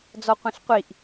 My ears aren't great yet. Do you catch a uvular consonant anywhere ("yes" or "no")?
yes